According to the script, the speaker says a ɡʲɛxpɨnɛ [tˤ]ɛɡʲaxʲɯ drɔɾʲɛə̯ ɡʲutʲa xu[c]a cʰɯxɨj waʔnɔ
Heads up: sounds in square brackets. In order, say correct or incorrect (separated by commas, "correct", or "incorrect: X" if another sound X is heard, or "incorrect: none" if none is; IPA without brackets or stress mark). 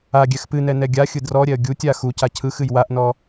incorrect: n, correct